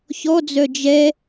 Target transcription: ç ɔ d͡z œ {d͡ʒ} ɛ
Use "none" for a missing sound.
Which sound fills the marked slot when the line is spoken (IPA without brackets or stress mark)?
d͡ʒ